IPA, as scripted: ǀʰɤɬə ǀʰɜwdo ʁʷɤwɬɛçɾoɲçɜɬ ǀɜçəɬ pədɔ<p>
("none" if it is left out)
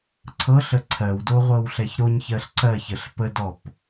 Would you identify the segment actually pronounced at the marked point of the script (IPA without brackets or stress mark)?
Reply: p